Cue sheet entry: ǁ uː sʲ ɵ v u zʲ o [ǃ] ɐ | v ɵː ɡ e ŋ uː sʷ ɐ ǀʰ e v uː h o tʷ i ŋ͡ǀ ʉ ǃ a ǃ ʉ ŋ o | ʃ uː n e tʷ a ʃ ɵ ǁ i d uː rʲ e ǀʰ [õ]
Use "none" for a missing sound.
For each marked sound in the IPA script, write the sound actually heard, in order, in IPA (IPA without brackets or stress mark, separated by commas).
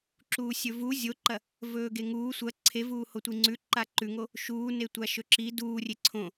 ǃ, õ